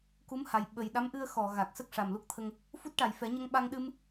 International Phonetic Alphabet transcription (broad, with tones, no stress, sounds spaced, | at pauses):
k u˧˥ m h a˨˩ j ɓ ə˨˩ j ɗ a˧˥ m ʔ ɨ˧ ə̯ x ɔ˨˩˨ ɣ a˨˩ k̚ s ə˦˥ k̚ ʂ a˨˩ m l u˦˥ k̚ t̪ʰ ə˧ ŋ | f u˦˥ t̚ ʈ a˨˩ j f ɛ˨˩˦ ɲ ə˧ ŋ ɓ a˧ ŋ ɗ ɨ˧ m